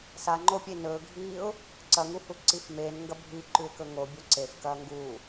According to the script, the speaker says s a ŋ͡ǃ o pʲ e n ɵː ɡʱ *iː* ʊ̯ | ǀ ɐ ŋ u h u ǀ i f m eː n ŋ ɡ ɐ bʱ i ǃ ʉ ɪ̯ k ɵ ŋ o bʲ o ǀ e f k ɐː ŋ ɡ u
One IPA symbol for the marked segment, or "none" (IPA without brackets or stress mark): iː